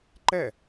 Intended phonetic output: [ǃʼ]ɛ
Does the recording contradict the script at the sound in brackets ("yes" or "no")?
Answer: yes